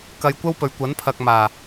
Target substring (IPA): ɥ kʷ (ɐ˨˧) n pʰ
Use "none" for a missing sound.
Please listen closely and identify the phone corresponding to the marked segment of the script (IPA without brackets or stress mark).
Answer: ɐ˨˥